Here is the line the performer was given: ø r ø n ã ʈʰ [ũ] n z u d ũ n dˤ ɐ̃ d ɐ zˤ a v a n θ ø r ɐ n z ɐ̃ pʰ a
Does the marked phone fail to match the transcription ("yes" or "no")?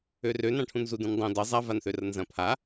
no